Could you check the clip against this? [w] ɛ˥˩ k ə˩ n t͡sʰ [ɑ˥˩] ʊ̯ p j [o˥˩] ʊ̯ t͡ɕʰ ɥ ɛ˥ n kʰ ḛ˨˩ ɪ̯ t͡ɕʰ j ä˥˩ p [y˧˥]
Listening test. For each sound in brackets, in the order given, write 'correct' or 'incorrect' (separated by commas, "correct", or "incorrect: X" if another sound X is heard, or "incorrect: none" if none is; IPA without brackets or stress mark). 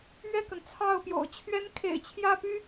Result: incorrect: ɥ, correct, incorrect: o̰˨˩, incorrect: y˥